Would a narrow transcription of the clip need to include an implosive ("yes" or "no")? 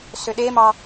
yes